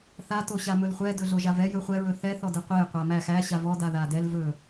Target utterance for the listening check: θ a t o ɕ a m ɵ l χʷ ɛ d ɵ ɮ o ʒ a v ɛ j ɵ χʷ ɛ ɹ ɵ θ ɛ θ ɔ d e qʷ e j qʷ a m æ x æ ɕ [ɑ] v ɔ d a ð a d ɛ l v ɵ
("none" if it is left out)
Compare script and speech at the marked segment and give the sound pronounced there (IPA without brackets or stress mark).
a